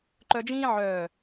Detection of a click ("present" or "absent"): present